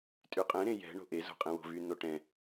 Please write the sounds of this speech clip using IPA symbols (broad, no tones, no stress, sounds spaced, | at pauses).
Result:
tʼ y qʼ ɛ̃ ɾ ẽ j ɛ̤ ɳ o̤ ʔ e z o̤ qʼ ẽ w o̤ v y n o ʈ ɛ̃